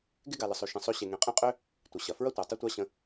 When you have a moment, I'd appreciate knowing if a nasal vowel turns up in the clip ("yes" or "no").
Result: yes